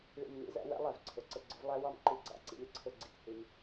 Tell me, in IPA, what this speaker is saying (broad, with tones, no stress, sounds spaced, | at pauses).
ɭ ḭ˨ m n ḭ˧ z æ̰˧ w æ̰˦ lˠ æ˨ v ǀʰ ʊ˨ ǀ ə˧ ɡ͡ǀ ʊ˨˦ v lˠ æ˦ w ɑ˦ m ǃ i˧ ɡ͡ǀ ɑ̰˧ ǀ ḭ˧ lʲ ə˧ ǀʰ ʊ˧ ɡ͡ǀ ḭ˨ t h i˧ m